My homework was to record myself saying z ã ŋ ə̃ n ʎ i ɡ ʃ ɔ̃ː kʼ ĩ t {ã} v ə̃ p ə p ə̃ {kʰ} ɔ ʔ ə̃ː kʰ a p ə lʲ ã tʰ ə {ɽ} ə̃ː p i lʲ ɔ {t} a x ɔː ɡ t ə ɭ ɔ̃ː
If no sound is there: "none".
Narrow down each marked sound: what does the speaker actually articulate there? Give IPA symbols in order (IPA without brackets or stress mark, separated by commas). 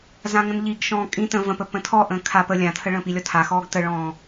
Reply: ə̃, tʰ, ɭ, tʰ